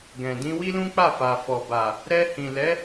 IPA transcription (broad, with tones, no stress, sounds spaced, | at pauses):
ɡ ɛ̃˨ d ĩ˧ w i˦ l ũ˦ k͡p a˦˨ f a˨ f ɔ˨ b a˨ | ɾ ɛ˧ h ĩ˨ l ɛ˨˦